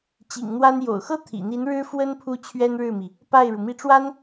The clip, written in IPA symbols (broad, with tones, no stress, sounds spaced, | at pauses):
t͡ɕ ḭ˨˩ ŋ n̪ w a˥ n j o̰˨˩ ʊ̯ x ɤ˥ t̪ʰ ḭ˨˩ n̪ i˧˥ n ɻ ɻ̩˥ f w ə˥ n pʰ u˥ t͡ɕʰ ɥ ɛ˥ n ɻ ɻ̩˥˩ m i˩ | p a˥˩ ɪ̯ ɻ u˩ m i˥˩ ʈ͡ʂ w a˥ n